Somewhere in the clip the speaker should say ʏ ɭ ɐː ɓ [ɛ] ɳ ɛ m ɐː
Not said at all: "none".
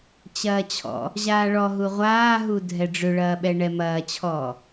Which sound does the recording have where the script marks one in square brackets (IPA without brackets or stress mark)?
ɛ